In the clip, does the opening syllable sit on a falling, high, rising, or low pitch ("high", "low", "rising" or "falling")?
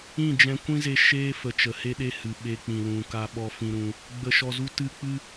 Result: falling